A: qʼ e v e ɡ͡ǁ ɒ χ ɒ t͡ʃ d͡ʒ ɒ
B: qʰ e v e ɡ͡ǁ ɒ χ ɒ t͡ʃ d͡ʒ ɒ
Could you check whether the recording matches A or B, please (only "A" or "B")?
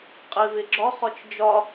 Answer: A